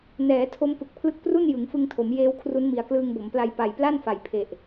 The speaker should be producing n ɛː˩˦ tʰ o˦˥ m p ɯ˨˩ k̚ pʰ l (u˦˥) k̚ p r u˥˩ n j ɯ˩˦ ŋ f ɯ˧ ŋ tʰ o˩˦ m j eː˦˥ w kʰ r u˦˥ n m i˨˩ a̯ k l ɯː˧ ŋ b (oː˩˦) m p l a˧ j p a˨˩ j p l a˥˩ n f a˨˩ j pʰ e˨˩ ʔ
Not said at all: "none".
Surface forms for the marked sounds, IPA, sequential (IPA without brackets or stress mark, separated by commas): ɯ˦˥, o˩˦